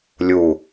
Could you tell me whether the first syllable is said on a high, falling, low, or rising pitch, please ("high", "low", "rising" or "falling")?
low